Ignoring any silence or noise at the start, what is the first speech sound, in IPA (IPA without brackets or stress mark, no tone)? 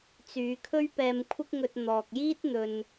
t͡s